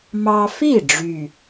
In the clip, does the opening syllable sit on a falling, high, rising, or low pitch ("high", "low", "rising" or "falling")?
high